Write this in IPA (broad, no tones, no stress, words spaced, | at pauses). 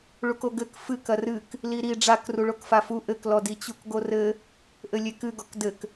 ɭukoɡɘk fɨk ɐrɨk | liɾi ɖ͡ʐak ruɭokfafu ʔɘklɔ dit͡ɕukɡorɘ | ʔɘlʲekɨɡɔk dɘk